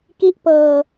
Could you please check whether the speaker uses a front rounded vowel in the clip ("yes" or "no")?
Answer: no